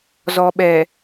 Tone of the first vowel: low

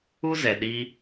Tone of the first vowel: high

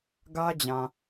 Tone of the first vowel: high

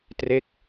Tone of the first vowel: falling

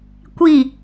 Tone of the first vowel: falling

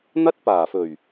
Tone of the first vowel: high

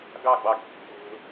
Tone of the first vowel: falling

